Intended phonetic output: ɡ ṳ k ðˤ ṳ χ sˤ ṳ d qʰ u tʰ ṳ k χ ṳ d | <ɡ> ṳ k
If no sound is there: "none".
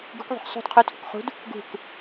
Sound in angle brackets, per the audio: ɡ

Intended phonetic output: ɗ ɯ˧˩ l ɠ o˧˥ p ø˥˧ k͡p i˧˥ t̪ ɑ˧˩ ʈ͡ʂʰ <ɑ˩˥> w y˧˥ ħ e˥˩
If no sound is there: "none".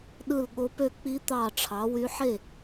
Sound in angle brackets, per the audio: ɑ˩˥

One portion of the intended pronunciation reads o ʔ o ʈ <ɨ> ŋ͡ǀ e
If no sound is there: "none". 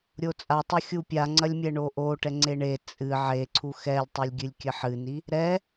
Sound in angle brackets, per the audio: ɛ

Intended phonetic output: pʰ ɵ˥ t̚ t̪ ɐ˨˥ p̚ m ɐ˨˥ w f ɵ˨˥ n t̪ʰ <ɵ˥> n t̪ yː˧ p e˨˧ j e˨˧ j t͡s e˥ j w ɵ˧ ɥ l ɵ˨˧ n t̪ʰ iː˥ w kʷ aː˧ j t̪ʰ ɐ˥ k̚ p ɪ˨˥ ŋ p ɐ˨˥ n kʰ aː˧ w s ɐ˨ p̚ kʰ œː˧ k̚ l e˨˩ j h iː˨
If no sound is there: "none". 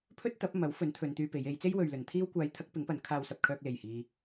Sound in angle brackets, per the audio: ɵ˨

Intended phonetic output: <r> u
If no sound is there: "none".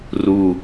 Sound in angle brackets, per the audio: r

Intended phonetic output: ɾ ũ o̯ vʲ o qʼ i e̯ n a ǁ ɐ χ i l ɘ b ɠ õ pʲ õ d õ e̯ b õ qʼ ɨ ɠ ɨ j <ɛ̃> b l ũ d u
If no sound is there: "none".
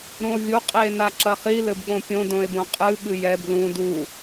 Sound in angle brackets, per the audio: ɛ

